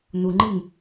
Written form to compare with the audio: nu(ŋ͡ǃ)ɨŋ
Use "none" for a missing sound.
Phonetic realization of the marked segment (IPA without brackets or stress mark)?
ŋ͡ǃ